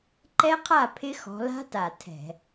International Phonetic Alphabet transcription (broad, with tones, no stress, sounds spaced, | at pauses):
ǃ ɛ˦˥ qʰ a˥˩ pʰ ɪ˦˥ x ɔ̤˨˦ l a̤˦˥ t a˨˩ tʰ ɛ̤˧˩˧